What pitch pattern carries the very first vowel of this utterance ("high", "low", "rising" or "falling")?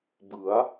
rising